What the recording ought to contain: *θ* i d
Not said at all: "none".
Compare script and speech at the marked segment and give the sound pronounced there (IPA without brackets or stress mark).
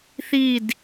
θ